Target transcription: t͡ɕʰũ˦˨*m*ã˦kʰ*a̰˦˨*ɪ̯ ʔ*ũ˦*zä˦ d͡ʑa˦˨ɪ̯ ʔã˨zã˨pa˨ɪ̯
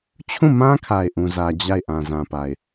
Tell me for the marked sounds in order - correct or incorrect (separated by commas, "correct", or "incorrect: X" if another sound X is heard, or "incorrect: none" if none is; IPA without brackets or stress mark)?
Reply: correct, incorrect: a˨, correct